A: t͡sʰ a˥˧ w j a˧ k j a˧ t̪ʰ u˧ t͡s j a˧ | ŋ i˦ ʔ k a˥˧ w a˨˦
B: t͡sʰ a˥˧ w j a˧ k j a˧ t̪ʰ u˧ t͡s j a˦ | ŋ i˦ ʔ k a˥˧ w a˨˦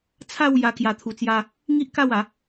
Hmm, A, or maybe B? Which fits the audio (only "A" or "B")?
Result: B